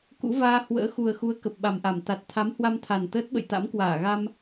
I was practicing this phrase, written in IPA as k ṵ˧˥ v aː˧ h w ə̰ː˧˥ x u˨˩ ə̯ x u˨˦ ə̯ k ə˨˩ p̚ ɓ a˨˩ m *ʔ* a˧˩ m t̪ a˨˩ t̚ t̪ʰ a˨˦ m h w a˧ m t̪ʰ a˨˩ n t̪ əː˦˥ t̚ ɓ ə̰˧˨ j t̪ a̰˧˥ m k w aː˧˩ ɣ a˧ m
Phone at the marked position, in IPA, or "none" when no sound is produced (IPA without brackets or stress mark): ʔ